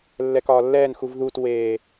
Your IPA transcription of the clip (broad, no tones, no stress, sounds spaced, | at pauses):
lː ɛ k ɒː lː ɛː n x u v ð u t w eː